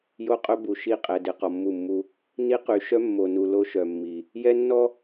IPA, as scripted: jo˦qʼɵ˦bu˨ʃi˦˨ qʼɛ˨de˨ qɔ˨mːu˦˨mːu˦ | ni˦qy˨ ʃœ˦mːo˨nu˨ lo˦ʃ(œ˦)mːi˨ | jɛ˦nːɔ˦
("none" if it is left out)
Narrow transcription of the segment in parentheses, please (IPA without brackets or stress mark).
œ˨